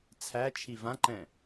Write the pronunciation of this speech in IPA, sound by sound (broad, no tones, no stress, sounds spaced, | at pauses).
t͡sʰ æ t͡ʃʰ i v ã ǃ ɛ̃